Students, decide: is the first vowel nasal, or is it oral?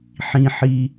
nasal